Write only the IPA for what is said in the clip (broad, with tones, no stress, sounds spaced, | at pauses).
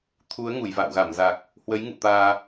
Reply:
t̪ʰ u˨˦ ə̯ ŋ u˧˩ j v a̰ː˧˨ w ɣ a˧˩ m z a˨˩ k̚ | h w ə˨˦ j ŋ ṵ˧˨ t̪ aː˧